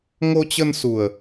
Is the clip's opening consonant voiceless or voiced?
voiced